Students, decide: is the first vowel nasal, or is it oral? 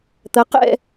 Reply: oral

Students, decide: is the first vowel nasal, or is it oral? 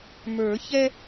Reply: oral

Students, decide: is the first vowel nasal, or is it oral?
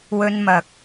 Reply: oral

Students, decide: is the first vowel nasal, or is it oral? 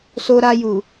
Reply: oral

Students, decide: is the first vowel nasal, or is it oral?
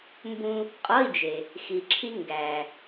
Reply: nasal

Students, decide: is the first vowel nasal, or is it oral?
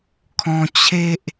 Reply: nasal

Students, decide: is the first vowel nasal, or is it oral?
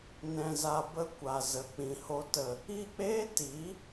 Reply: nasal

